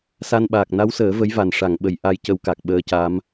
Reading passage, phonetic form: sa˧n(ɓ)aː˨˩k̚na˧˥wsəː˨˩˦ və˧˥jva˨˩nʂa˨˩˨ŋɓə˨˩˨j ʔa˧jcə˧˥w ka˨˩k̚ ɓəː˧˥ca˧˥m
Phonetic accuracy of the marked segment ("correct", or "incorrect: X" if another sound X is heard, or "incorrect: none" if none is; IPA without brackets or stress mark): correct